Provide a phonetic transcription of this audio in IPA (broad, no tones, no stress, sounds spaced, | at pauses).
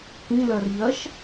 k ĩ l ɜ r ʎ ɜ ʃ